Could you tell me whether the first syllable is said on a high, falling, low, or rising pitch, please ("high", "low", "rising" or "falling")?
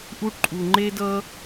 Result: high